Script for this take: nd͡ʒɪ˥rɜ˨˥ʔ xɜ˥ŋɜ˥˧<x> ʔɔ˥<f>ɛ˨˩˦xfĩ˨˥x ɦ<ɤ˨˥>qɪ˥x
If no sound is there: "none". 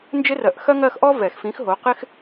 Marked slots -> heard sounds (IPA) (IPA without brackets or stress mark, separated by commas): x, v, o˨˥